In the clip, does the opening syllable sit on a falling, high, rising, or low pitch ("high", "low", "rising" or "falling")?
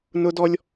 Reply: high